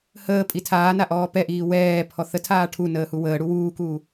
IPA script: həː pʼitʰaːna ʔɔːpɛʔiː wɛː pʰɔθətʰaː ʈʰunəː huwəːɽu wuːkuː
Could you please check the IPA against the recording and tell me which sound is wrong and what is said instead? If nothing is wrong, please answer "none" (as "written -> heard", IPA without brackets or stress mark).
none